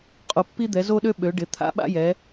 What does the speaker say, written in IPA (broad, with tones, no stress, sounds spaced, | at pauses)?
qʼ o˩˧ pː i˦ d̪ ɛ˩˧ z o˦ ɗ ø˦ ɓ ø˩˧ ɖ ɪ˩˧ t̪ʰ a̰˦ ɓ a̰˦ j ɛ˩˧